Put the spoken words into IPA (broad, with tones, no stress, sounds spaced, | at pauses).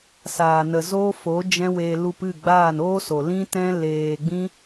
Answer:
s aː˨ n ə˨ z oː˦ f o˨˦ d͡ʒ ɛ̃˦ w eː˧ l u˧ p ɨ˦˨ ɡ͡b aː˦˨ n oː˦ s o˨ l ĩ˦ t ɛ̃˦ l eː˧ ɡ͡b ĩ˦